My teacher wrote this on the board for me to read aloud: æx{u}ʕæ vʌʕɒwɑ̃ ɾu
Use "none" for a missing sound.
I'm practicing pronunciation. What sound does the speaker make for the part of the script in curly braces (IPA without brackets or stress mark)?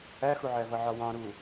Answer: u